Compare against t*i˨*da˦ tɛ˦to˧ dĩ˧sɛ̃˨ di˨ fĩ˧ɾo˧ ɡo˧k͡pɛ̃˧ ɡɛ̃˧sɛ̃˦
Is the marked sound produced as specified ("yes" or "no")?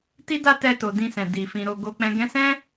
no